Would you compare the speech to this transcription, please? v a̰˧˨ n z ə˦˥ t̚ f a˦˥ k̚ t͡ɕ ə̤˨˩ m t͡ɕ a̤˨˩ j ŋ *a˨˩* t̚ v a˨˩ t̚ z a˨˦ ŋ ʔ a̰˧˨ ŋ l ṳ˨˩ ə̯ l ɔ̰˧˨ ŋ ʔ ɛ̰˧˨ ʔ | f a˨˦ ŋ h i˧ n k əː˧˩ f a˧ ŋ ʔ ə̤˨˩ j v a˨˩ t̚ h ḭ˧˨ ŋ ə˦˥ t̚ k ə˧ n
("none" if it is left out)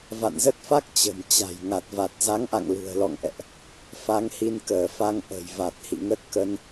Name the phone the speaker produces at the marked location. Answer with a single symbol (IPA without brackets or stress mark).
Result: a˨˩